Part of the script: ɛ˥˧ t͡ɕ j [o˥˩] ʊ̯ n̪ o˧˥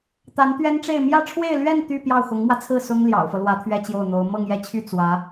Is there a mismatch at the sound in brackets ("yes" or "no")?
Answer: no